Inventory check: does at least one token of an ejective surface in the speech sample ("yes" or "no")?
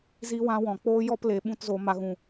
no